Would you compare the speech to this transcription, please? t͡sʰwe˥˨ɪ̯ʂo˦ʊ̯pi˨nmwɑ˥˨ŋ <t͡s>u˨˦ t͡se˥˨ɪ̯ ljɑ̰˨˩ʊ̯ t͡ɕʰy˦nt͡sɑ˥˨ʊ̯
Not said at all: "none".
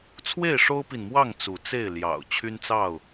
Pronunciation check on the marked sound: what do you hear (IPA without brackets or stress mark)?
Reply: t͡s